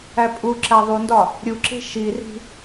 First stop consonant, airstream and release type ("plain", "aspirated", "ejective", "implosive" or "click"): ejective